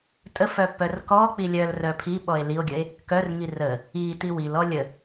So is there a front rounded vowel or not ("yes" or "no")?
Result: yes